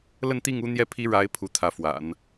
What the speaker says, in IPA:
l ə˥˧ n t̪ i˥˩ ŋ u˥ n̪ j ɛ˥ pʰ i˥ ɻ a˧˥ ɪ̯ pʰ u˧˥ t̪ʰ ä˧˥ f w a̰˨˩˦ n

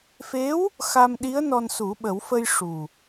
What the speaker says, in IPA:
f e˧˥ w | x a˧ m ɗ i˧˥ ə̯ n ɔ˧ n s u˨˩˦ ɓ ə˨˩˦ w f ə˧ j ʂ u˨˩

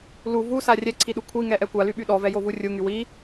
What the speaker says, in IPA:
l u v u s a rʲ ɛ ǀʰ i ɗ u kʷʰ i ŋ ɛ ʔ ɛ kʷ a l y ɓ y ɗ ɔ v ɛ j o v u rʲ u ŋ y w i

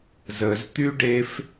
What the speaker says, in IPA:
z ə z t̪ y ɖ e f

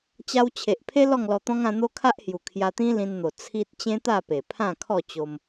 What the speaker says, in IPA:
t͡ɕ a˧ w t͡ɕʰ e˨ ʔ pʰ e˦ l ɔ˥˧ ŋ l ɔ˧ t̪ ɔ̃˦ ŋ ã˧ n̪ o˦ kʰ a˦ ʔ h j u˨˩ kʰ j a˧ t̪ ĩ˦ l ĩ˧ n n̪ o˨˩ t͡sʰ i˦ t̚ t͡ɕ ẽ˦ t̪ a˥˧ p e˨˩ pʰ ã˥˧ kʰ ɔ˥˧ t͡ɕ o˧ m

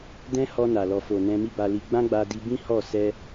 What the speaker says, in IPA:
d ɛ̃˦ h ɔ˧ n a˨ l ɔ˨ f o˨ n ɛ̃˧ m i˦ b a˧ l i˧ ɡ͡b ã˦ ɡ͡b a˧ d i˧ b ĩ˦ h ɔ˦˨ s ɛ˧

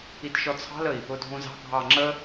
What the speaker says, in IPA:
i t ʃ ɔ t͡sʰ ɑ̤ l ə i̯ | ʊ dʱ ũ z ɑ̤ ɡʱ ɑ ŋ͡ǁ ə

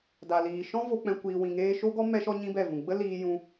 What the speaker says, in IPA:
d a˨ l iː˨ ʃ ɔ̃˦ v o˧ k͡p ɛ̃˧ kʷ iː˧ w ĩ˨ ŋ eː˧ ʃ o˦ ɡ ɔ˦ m ɛ˦ ʃ ɔ˦ ɲ ĩ˦ b ɛ˦˨ v ũ˨ ɡ͡b ə˦ l iː˦ j ũ˦

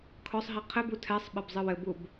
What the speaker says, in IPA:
kʰ ɔ sˤ ɦ i qʰ ɘ b u tʰ ɛ sˤ ɓ ɘ b zˤ ɨ w ɘ b u b

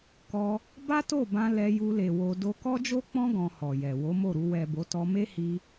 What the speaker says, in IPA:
k ɔ˧ | b a˦ t o˦˨ b ã˧ l ɛ˧ j u˧ l e˨ w o˧ d o˧ k ɔ˦ d͡ʒ o˦ k͡p ɔ̃˦ ɡ ɔ̃˧ h ɔ˨ j ɛ˨ w o˨˦ m o˦˨ ɾ u˧ w ɛ˨ b o˨˦ t ɔ˧ m e˦ h i˧

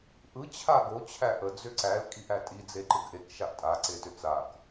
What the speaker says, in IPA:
ʔ ɯ t͡ɕʰ a ɡ o t͡ɕʰ æ ʔ ə d͡z ʏ ǀ æ l kʼ i ʔ æ tʼ i d͡z e ǃ ɯ ɡ ʔ e k ʃ a ʔ tʼ a ǀ e t ʏ t͡s a k

